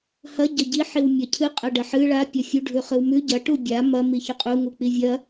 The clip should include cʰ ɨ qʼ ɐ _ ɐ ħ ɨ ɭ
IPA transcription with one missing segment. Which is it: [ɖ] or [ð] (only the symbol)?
ɖ